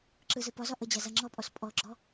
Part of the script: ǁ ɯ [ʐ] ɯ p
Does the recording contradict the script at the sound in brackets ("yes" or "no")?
yes